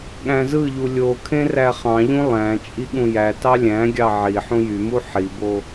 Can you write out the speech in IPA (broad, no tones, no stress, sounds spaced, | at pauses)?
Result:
ɠ æ̃ z ɯ ʎ u lʲ o kʰ ẽ r æ χ ɑ̃ ʎ ũ lˠ æ̃ t͡ʃʼ i ɠ ũ j æ t ɑ lʲ æ̃ ɡʲ ɑ ʕ i ħ ũ j y m u ħ i b o